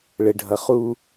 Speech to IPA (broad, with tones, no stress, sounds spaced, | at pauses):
ɭ ɘ˨ ɖʱ ʌ˨ χ u˦